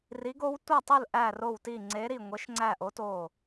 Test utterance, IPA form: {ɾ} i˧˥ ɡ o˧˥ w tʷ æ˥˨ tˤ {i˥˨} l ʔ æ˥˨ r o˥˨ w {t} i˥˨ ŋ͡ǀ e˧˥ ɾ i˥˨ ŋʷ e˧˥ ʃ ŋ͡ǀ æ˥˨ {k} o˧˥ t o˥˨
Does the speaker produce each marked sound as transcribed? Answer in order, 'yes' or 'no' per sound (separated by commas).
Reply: no, yes, yes, no